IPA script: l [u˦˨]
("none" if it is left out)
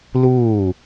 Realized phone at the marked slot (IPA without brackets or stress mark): uː˦˨